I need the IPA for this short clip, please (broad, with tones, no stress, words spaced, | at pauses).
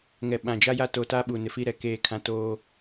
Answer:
ŋɛ˨ɓã˨d͡ʒa˦ja˦ to˨ta˦ ɓuː˨nɪ˨fi˦ ɾɛ˨ keː˦˨kʰã˦toː˦